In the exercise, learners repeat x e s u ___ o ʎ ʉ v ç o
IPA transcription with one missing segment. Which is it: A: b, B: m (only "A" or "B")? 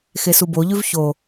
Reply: A